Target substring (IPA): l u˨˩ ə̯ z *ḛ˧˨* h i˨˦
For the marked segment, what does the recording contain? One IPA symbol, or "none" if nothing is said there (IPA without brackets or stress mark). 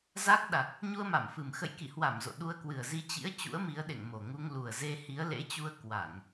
e˧